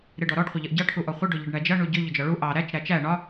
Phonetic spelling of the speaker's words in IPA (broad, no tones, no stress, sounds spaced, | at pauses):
ɾ ɪ ɖ ɔ ɾ ɔ ɖ χʷ ɪ ʎ ʌ ʔ ɟ ɑ ʈʰ u ʔ ɔ χʷ ə ɖ ʊ ʎ ə ɖ ɳ æ d͡ʒ ʌ ɳ u ɟ ʊ ʎ ʊ d͡ʒ ɒ ɭ u ʔ ɑ ɾ æ t͡ʃ ɾ æ t͡ʃ æ ɳ ɒ